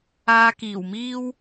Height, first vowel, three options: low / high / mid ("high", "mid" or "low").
low